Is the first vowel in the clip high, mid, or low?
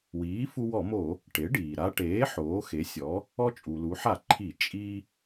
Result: high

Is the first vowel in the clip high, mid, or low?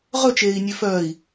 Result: mid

